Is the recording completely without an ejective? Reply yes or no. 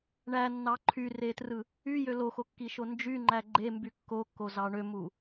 yes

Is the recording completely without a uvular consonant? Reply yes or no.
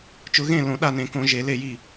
yes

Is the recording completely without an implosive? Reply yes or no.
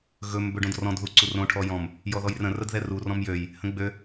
yes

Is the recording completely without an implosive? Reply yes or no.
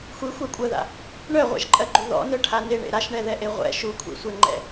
yes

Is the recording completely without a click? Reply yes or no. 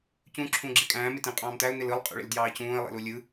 no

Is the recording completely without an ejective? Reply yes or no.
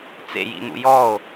yes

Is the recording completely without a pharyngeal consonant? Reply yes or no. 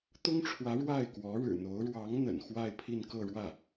yes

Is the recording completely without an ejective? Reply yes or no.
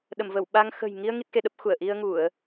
yes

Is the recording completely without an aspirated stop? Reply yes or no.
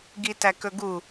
yes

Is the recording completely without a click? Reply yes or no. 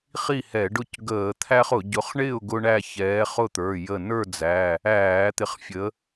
yes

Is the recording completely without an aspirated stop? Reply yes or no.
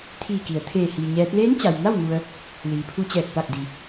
no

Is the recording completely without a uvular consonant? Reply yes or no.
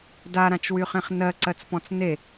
no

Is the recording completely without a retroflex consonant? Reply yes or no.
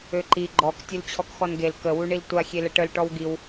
no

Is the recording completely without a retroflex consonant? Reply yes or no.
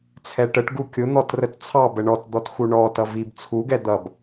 no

